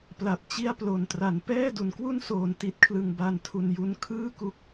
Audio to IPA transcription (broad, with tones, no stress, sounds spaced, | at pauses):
p l a˨˩ p̚ t͡ɕ i˥˩ a̯ p l o˨˩ n t r a˩˦ n p ɛː˥˩ d u˩˦ n k w u˥˩ n s oː˩˦ n t i˨˩ t̚ kʰ l ɯ˨˩ ŋ b a˧ n tʰ u˨˩ n j u˧ n kʰ ɯː˥˩ k u˦˥ k̚